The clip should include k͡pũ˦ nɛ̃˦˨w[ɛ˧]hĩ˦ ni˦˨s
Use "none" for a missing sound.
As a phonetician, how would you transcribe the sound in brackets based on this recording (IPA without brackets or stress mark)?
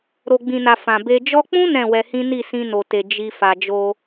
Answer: ɛ˧